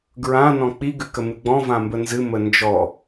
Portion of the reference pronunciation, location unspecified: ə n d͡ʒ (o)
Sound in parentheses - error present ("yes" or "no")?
yes